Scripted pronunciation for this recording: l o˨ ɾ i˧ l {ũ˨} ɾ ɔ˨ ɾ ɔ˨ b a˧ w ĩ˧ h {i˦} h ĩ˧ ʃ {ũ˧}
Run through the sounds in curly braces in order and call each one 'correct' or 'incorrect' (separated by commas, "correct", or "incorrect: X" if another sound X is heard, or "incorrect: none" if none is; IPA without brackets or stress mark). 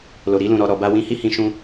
correct, correct, correct